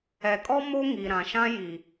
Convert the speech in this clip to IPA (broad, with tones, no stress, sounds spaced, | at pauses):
ɛ˨ kʼ ɔ˦ m o˦ ŋ i˨ ɾ ã˨ ʃ ã˦ j i˨